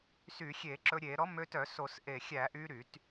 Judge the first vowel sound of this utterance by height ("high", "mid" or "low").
high